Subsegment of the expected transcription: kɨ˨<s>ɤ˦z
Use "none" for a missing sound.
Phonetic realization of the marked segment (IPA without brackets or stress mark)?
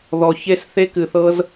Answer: θ